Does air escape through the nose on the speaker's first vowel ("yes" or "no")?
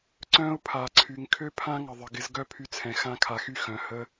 yes